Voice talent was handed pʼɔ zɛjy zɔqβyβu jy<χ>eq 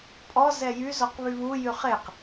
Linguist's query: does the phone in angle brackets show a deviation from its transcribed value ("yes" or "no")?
no